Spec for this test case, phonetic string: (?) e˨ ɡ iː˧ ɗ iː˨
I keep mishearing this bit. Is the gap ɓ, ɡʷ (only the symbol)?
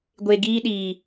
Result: ɡʷ